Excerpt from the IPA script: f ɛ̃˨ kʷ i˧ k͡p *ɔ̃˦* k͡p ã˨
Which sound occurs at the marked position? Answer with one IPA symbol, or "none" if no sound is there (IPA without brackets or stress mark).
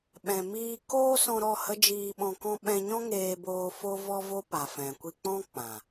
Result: ɔ̃˦